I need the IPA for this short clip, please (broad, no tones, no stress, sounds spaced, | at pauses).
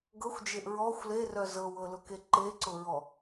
ɡ ɤ xʷ d͡ʒ e ʔ ɹ ɔ xʷ l e r œ z ɤ w ɤ l ʊ k e ǃ e ǀ ʊ ɹ ɔ